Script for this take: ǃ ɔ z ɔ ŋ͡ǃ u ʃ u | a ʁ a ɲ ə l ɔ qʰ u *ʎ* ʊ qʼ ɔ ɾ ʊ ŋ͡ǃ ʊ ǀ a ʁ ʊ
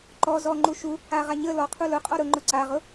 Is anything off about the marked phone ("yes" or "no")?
yes